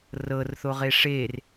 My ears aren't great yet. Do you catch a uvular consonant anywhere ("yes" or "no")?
yes